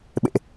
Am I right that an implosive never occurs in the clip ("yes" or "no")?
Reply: no